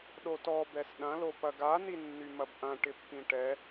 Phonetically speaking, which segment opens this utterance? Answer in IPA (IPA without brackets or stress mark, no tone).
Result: ɗ